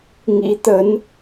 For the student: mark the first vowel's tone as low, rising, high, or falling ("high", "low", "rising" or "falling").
rising